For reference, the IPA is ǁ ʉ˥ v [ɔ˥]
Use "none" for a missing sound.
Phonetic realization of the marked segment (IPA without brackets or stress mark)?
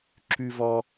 ɔ˥